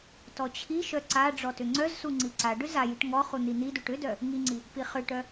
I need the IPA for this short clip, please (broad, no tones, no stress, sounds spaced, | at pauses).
t ɔ t͡ɕʰ i ʃ œ ǀ a ɖ͡ʐ ɔ t ʏ ŋ͡ǀ œ z s u ŋ͡ǀ i ǀ a ɖ ʏ z a j i ʈ ŋ ɔ χ u n̪ i n̪ i d u ʈ ʏ d œ | ŋ i ŋ͡ǀ i | p i χ ʏ ʈ œ